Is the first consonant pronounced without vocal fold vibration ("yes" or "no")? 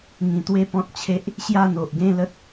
no